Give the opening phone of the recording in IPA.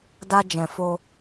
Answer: d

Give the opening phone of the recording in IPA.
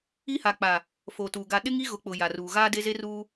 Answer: i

